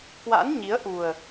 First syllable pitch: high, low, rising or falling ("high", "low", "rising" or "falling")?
rising